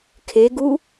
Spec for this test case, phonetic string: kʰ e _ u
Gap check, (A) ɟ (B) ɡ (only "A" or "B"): B